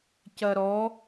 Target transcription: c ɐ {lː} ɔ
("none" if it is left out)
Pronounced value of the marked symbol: ɾ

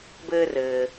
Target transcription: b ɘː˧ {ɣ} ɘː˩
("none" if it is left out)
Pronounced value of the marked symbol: r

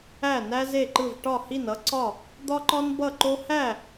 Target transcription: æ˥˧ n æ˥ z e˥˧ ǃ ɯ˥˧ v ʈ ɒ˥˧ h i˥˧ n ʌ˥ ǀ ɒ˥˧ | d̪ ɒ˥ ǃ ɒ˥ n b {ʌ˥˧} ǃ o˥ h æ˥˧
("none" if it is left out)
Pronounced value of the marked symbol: ʌ˥˧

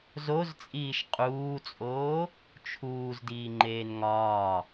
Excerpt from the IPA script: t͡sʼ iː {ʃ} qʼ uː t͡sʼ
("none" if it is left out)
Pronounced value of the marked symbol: ʃ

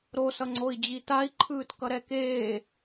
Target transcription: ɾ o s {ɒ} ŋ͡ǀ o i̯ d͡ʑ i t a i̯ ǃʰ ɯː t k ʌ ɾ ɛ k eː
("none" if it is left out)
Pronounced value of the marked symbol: ʌ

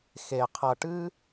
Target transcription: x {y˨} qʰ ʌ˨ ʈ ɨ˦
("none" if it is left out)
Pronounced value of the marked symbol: e˨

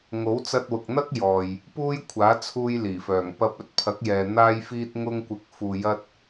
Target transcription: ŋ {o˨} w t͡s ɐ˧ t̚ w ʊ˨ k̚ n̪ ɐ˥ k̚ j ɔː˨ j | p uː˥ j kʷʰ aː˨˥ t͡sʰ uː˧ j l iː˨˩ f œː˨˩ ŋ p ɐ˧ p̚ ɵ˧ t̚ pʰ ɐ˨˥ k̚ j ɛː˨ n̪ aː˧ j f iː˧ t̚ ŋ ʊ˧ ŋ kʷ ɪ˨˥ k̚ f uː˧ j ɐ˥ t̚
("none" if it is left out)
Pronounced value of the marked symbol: o˨˥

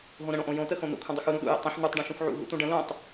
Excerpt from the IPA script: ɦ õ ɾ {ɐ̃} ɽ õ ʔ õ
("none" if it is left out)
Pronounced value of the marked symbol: ə̃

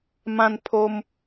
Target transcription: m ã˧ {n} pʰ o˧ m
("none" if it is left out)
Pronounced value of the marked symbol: n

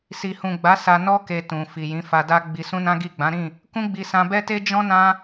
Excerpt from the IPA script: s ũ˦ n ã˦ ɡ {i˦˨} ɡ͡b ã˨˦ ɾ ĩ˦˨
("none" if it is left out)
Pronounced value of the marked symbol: i˦˨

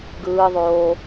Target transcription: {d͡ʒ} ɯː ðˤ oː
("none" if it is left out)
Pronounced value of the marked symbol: ɡ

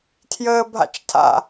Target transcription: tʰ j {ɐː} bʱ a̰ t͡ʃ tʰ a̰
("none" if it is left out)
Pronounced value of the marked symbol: əː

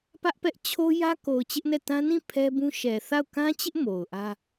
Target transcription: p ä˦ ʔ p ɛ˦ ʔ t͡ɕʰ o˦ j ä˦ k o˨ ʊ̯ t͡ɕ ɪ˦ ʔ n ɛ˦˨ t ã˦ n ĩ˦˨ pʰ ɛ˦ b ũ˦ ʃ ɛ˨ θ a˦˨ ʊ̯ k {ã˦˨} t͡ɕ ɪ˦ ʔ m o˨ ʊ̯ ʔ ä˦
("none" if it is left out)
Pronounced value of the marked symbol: ã˦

